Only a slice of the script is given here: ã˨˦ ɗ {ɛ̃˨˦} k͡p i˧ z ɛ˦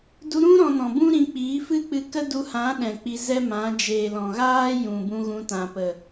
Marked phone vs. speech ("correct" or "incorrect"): incorrect